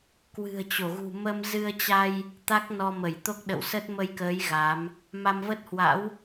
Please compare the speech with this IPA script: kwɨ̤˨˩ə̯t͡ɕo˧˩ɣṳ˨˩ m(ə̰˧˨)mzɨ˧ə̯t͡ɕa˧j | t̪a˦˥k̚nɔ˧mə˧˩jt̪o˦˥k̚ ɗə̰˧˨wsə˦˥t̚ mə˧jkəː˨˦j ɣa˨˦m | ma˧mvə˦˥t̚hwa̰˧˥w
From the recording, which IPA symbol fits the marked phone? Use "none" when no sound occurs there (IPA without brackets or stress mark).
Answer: ə˧